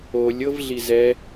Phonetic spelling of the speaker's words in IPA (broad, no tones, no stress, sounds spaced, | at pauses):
o lʲ ɤ v ɮ i z ɛ